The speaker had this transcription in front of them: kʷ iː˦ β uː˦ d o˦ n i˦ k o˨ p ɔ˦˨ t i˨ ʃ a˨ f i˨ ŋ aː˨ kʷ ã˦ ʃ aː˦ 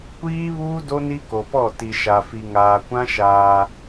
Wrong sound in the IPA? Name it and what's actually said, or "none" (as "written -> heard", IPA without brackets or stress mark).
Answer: none